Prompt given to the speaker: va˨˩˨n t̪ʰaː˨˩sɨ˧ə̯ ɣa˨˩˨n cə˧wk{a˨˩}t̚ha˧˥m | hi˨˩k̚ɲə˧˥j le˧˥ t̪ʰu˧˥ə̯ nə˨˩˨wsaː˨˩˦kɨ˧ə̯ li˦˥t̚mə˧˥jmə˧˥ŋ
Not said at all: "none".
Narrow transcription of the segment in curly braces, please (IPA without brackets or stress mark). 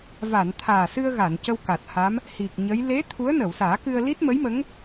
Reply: a˨˩